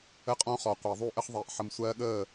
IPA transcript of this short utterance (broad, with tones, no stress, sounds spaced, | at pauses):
ə˦ qʼ ɔ̃˦ χ ɔ˨ qʷ e˨ ðˤ u˦˨ ʔ ə˦ χ ðˤ iː˨ ʔ ħ ə˨ m sʷ ɜː˧ ɠ əː˦˨